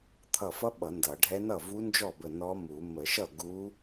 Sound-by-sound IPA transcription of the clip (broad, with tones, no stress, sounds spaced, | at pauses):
t̪ʰ ʌ˧˩ f ʌ˧˥ ɓ ʌ˨˩˦ n d ʌ˨˩˦ ɖʱ ɛ˧˥ n ʌ˥˩ v u˧˥ n d͡ʒ ɔ˥˩ b ə˧˩ n ɔ˧˥ m u˨˩˦ m ə˨˩˦ ʃ ʌ˥˩ ɡ u˧˥